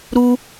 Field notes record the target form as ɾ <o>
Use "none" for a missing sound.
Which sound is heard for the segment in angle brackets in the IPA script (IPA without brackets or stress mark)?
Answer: u